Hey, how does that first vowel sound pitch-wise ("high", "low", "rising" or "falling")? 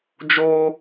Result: high